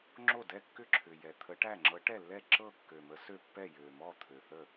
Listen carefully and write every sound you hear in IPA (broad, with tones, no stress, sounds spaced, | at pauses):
ŋ͡ǁ o˥˩ d ɛ˥˩ kː ʏ˥˩ ǁʰ ʏ˨˩ j ɛ˨˩ t̪ʰ ə˨˥ ʈ æ˥˩ ŋ͡ǁ ɤ˨˥ ʈ ɛ˥˩ lː ɛ˥˩ ǁ ɤ˥˩ kː ø˨˩ m ə˨˥ s ø˥˩ pː ɛ˥˩ j ø˨˩ m ɔ˥˩ t̪ʰ ø˨˩ θ ə˥˩